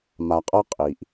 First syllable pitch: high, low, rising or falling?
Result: low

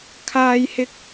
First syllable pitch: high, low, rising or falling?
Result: high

